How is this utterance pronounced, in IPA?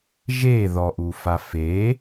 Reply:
ʒ e ð ɔ ʔ u f a f e

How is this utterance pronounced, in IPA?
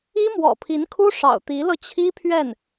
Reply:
i˥ m w ɔ̰˨˩ pʰ i˧˥ n kʰ u˥ ʂ ɑ̰˨˩ ʊ̯ t̪ i˧˥ l ɤ˧ t͡ɕʰ i˥ pʰ ɥ ɛ˥˩ n

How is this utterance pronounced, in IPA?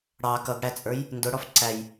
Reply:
ɽ ɑ k ʌ ɡ ɽ æ t͡sʼ ə˞ j | n d ʊ ɽ ɔ f ǀ æ j

